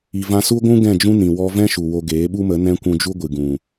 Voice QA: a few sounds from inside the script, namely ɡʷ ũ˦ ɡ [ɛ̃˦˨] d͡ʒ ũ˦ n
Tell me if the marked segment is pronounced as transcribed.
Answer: yes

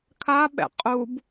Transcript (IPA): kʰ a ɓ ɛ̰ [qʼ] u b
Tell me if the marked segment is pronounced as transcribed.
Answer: yes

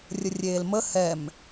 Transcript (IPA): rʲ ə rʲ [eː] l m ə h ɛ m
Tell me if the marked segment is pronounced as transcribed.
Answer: yes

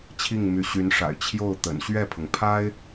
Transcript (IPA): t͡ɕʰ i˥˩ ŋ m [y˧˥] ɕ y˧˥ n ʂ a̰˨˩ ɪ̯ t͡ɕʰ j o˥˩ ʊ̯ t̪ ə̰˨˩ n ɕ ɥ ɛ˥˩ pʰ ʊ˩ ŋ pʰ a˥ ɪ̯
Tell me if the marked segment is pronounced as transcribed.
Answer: yes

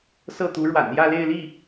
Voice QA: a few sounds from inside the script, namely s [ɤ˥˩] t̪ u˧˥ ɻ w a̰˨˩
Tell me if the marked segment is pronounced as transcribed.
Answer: yes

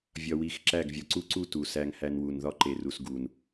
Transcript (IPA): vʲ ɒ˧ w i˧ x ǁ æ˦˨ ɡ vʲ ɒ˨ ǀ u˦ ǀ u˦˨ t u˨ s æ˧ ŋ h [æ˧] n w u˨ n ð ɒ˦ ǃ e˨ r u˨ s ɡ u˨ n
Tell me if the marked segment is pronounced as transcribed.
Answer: yes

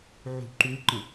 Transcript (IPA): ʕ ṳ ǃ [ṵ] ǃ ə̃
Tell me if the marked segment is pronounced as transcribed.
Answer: no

